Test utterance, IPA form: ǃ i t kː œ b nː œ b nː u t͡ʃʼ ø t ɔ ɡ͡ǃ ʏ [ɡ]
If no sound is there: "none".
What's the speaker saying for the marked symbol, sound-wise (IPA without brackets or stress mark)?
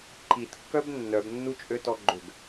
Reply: ɡ